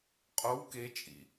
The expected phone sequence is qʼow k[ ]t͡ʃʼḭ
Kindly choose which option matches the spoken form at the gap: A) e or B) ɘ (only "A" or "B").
A